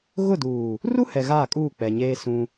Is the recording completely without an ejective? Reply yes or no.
no